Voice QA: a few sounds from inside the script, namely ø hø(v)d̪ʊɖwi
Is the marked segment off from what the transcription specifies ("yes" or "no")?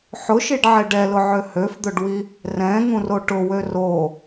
yes